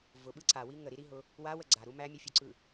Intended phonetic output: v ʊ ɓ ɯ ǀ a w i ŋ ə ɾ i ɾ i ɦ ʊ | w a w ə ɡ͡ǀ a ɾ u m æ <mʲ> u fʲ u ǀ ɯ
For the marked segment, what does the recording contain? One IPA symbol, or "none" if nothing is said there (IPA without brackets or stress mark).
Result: mʲ